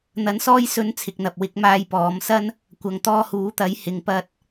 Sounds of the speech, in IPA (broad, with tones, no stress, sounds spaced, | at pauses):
n̪ ɐ˧ n s ɔː˥ j s ɵ˨˧ n t͡sʰ ɪ˨ k̚ n̪ ɐ˨ p̚ w ɪ˨˥ k̚ m aː˧ j p ɔː˨˧ m s ɐ˥ n | kʷ ɐ˨ ŋ t̪ ɔː˧ h uː˨˥ t̪ ɐ˨˥ j h ɪ˨ ŋ p ɐ˧ t̚